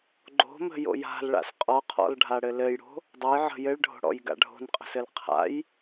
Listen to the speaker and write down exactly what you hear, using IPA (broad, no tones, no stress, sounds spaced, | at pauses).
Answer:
ɡ͡ǃ o̤ m ə̤ j o̰ j a̤ l ɭ a̰ s qʼ ɔ qʰ ɔ̰ l ɖʱ a ɽ ɘ l ɘ j ɽ o̤ | dˤ ə j ʕ ə̤ j ɘ ɭ ɖʱ o̤ ɽ ɔ̰ j ɡ a̰ ɖʱ o̤ n qʼ ə̤ s ɘ l qʰ a̰ j